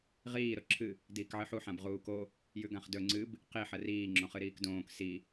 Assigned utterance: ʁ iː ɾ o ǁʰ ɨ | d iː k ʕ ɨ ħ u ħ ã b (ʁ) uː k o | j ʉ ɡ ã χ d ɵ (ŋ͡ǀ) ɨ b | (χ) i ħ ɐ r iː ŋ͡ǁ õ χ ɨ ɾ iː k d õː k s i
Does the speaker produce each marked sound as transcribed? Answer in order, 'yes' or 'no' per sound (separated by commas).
yes, yes, no